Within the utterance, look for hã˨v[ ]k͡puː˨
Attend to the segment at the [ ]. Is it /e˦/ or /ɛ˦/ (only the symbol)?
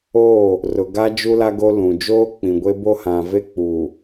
e˦